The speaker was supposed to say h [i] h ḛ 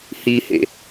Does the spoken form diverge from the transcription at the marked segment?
no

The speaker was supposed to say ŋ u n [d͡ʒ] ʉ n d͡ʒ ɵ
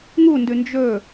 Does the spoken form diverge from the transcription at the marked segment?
yes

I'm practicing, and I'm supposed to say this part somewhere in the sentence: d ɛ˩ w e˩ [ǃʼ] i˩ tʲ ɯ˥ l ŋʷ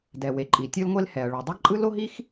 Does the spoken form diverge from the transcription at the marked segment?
no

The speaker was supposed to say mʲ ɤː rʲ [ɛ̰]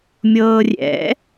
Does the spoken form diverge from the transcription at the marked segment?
no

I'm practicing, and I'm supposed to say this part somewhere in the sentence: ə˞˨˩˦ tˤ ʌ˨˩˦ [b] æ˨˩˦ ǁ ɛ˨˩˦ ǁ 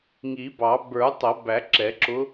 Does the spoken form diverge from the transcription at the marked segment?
no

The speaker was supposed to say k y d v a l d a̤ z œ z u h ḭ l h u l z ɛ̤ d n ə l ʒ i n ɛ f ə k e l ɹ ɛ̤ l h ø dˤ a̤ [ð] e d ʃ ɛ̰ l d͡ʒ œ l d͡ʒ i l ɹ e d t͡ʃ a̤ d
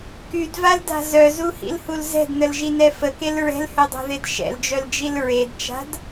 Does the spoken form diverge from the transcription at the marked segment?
no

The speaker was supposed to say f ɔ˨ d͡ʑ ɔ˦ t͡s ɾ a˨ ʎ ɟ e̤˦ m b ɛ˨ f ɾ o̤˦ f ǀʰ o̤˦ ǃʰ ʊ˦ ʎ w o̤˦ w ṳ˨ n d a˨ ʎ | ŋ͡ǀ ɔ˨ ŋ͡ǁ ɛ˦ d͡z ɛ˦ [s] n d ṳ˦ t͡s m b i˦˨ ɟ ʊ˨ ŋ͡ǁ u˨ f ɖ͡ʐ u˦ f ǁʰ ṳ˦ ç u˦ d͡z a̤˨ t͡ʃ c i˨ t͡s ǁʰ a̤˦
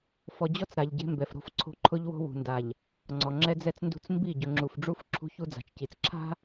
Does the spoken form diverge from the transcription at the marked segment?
yes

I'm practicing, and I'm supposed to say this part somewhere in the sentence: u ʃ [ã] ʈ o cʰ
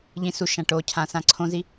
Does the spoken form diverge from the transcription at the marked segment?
no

